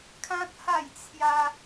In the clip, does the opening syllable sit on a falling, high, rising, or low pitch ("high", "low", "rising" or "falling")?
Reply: high